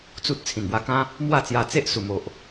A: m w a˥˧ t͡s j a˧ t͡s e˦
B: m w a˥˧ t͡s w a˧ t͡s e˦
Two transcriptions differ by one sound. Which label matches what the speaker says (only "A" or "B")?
A